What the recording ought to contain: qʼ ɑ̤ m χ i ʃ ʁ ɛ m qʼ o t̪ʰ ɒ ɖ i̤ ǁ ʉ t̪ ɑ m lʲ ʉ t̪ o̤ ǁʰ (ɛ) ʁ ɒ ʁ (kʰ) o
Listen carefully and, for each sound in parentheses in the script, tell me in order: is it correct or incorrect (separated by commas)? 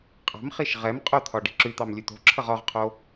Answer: incorrect, incorrect